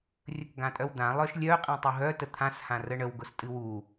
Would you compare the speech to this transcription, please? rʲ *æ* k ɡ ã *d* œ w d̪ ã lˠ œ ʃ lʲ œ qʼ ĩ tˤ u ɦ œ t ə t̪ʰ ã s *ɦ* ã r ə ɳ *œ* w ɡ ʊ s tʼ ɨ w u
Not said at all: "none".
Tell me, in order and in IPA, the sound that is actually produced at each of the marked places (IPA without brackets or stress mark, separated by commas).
ə, tʼ, h, ə